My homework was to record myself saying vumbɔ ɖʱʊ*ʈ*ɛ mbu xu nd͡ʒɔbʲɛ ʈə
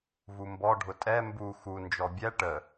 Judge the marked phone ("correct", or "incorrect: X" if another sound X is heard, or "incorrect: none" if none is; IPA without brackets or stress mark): incorrect: tʼ